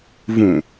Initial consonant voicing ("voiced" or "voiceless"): voiced